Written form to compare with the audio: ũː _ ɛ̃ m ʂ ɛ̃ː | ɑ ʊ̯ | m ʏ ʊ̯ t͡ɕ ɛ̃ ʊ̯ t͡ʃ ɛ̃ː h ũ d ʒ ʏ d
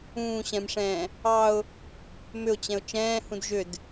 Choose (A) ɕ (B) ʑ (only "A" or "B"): A